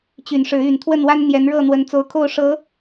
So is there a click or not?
no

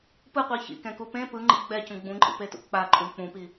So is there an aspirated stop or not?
no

